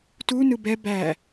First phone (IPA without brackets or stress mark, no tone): t